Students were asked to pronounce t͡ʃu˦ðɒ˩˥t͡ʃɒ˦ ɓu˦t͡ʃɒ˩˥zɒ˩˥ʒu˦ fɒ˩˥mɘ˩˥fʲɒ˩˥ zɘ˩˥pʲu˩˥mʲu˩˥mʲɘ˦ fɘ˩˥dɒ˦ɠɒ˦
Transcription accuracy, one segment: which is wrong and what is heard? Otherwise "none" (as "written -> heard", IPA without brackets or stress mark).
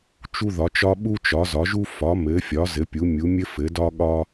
none